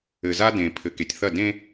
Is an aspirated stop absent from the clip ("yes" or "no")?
no